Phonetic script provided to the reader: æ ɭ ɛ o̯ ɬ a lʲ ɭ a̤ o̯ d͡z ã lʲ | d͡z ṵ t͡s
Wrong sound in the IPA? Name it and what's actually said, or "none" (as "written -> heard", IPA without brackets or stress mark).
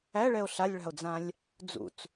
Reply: none